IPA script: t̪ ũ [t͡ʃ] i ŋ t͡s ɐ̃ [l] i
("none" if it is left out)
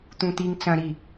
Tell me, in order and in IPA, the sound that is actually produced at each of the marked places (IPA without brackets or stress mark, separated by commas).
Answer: t̪, ɾ